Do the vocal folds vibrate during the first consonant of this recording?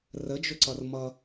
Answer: yes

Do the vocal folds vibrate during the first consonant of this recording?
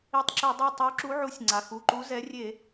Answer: no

